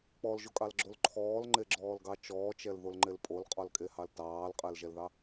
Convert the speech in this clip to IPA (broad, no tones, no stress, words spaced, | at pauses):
k͡pɔlʒokʼɑlɡ͡ǁol ǃʰɔːlŋ͡ǃeɡ͡ǁɔːlɡɑ t͡ʃɔːt͡ʃɛlðolŋ͡ǃel pʼolqʼɔlkʼehɑl tɑːlqʼɛlʒɛlðɑ